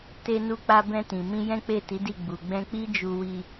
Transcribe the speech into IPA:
te˧nu˧k͡pa˧ bɛ̃˧tĩ˨mĩ˧ jɛ̃˦k͡pe˦˨ti˨˦di˦˨ ɡ͡bu˨ɡ͡bɛ̃˧k͡pi˦ d͡ʒu˧wi˧

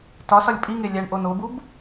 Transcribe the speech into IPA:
tɒsɒlʲ pʼiŋe lʲæɳʔo nobub

